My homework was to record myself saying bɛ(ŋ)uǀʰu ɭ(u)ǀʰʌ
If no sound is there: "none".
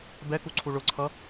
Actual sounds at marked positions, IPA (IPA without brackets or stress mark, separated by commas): k, ʊ